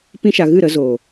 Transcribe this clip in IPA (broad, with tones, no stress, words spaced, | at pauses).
pĩ˦ʃa˧ ɣɨ˦˨ɾə˧zoː˨